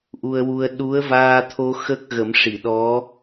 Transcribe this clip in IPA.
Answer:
ʔ u˧ ə̯ w u˧ ə̯ ɗ u˧˥ ə̯ v aː˧ t̪ʰ o˧ x ə˦˥ k̚ ɣ ə˨˩˦ m ʂ i˨˩˨ ɗ ɔ˧˥

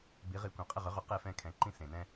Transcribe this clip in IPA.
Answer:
b i˩˥ ʁ i˩˥ kʷ ɛ̃˩ qʼ ɪ˥˩ ʁ ʏ˩˥ ʁ ʏ˩˥ q e˥˩ f ɛ̃˥˩ kʰ ɛ̃˩˥ ǃ ĩ˥ s ẽ˩ n ɛ̃˥

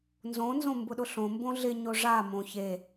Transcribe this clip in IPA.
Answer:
n z õ n z õ m b ʊ ɗ ʊ ɬ õ m b õ ɮ ɪ ɲ o ʐ a m õ ç e

